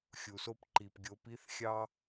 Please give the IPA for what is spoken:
xʲ u˨ s o˦ p ǃ i˨ p ɡʲ o˨˦ p i˦ θ xʲ ɑ˦

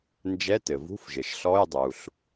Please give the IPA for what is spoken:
n d͡ʒ ɛ˧˥˧ t ɘ˩ v ṳ˧˥˧ f ʒ ɘ˩ ʃ ɬ ɔ˧˥˧ j dˤ u˩ ɬ

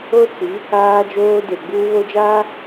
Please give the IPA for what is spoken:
o˦ t͡s i˨˦ | aː˦ d͡ʒ oː˦ d e˨ ɡ͡b uː˦ β o˦ d͡ʒ aː˦

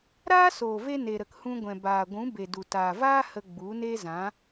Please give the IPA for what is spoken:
ɾ aː˦ s oː˨ v e˧ n e˨ ɾ ə˨ k h ũ˧ ɡʷ ɛ̃˨ b aː˨ ɡʷ ũ˨˦ b e˨ d u˨ t aː˨ v aː˦ h ə˧ ɡ͡b u˨˦ n e˦ z ã˨˦

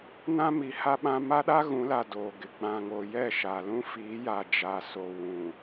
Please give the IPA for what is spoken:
n ã˦ m i˨ h a˦ ɓ ã˦ m a˦ ɗ a˦ ɣ ũ˨˦ l a˨ d oː˨ ɡ ɪ˨ ɡ͡b ã˨ ŋ o˨ j ɛ˦˨ ʃ a˨ l ũ˦ f iː˨˦ j a˨ d͡ʒ a˨ s o˨ w ũ˨

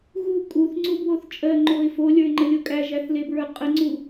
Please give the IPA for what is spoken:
ɣ u kʼ u θ ŋ͡ǀ u b w o θ t͡ʃʼ ɜ ŋ͡ǃ o ɪ̯ f o lʲ ə˞ ɪ̯ ŋ͡ǃ ə lʲ o kʼ æ ʒ æ θ l e b ɹ ə˞ qʼ ə ŋ͡ǀ u

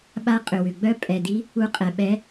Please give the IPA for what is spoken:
ɓ a˧˥ qʼ ʏ˨˩ w ʏ˨˩ ɡ͡b œ˧˥ pʼ ɛ˨˩ d i˧˥ | u˧˥ qʼ ɛ˨˩ ɓ ɛ˧˥

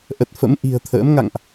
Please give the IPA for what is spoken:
ʔ ə˨˩ t̚ f ə̰˧˥ m ʔ i̤˨˩ ə̯ t̪ʰ ə̰ː˧˥ m ŋ a̰˧˨ ŋ ʔ

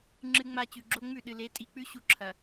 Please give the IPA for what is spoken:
ŋ͡ǁ ɨ˦ ŋ͡m a˦ t͡ɕ ʉ˨ ɡ͡ǁ o˦ ŋ͡m ʉ˦˨ ɗ ɨ˨ l e˨˦ tʼ i˨ k͡p ʉ˦ ɕ u˦ ǁʰ ɐ˨

